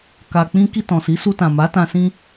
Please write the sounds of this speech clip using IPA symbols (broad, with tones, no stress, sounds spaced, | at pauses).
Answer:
k a˨ k͡p ĩ˧ k i˧ t ɔ̃˨ s i˨˦ s u˧ t ã˨ m a˨˦ t ã˧ s ĩ˦